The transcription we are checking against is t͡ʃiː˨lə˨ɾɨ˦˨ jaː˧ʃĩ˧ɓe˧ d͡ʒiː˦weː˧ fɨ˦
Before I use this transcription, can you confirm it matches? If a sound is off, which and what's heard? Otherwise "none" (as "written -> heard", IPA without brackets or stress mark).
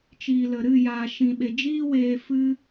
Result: none